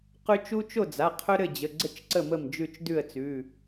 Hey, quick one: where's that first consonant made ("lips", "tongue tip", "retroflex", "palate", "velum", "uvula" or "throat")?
uvula